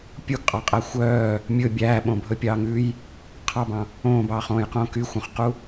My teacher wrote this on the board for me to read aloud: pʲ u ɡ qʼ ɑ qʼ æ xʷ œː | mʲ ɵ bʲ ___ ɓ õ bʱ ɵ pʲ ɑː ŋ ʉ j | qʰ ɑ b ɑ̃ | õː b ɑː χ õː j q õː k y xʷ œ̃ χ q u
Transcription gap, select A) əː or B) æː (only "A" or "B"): B